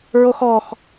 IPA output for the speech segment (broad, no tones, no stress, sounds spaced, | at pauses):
ɹ o x ɔ x